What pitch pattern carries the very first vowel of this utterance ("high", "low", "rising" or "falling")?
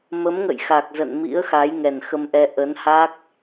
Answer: rising